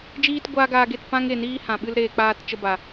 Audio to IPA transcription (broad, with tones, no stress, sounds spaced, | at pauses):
d͡ʒ iː˦ t ɡʷ aː˦ ɡ aː˧ ɡ e˦˨ t p ã˦ ŋ e˨ n iː˦ h ã˨ ɓ ɨ˦ l ɾ eː˧ k͡p aː˦ t t͡ʃ ə˦ b a˨